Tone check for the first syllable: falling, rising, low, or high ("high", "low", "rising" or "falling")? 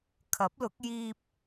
rising